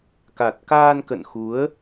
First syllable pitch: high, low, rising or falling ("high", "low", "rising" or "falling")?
low